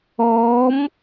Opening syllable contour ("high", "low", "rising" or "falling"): rising